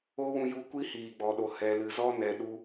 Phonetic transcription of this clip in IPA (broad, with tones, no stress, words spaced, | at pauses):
o˦wũ˧ju˧ kʷi˦hiː˨ɡ͡bɔ˨ɗo˨ hɛ˨lɨ˨zɔ˦ nɛ˨ɗu˧